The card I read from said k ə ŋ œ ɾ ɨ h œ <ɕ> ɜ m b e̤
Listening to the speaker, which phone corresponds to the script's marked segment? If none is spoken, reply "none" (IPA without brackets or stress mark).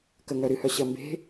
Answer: ɕ